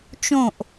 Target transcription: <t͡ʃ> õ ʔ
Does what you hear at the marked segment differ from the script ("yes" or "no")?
no